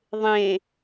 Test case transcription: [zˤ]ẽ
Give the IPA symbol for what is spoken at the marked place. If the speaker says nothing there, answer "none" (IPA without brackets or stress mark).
ðˤ